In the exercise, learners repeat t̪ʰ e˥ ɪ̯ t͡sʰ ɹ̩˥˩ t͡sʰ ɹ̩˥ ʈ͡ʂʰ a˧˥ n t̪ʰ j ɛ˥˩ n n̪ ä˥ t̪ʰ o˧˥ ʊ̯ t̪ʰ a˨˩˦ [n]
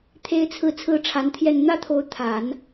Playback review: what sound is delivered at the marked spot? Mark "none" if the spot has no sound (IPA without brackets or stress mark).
n